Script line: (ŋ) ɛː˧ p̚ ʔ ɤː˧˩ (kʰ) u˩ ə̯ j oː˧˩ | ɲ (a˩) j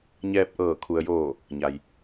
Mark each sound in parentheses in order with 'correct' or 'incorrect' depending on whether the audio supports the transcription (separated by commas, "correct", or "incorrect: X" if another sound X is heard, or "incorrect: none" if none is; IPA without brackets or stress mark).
incorrect: ɲ, correct, correct